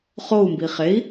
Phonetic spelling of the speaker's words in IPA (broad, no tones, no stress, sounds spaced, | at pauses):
χ o u̯ m b i χ e i̯